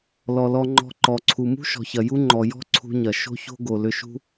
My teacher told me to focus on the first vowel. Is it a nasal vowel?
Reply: no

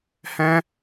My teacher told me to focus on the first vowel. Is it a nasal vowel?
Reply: yes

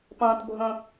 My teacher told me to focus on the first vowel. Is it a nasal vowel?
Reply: yes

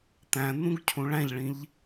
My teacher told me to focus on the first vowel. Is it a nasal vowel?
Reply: yes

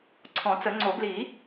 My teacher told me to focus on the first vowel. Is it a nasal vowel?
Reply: yes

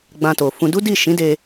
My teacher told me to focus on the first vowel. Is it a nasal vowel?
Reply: yes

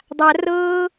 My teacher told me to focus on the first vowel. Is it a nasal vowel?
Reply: no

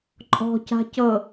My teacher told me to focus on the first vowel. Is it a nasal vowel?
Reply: no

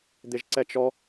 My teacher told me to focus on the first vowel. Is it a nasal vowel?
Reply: no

